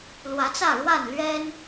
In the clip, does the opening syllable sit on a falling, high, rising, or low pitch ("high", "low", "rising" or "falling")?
rising